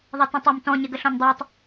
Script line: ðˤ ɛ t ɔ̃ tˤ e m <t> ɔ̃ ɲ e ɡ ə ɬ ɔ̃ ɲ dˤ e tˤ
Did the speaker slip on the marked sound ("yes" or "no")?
no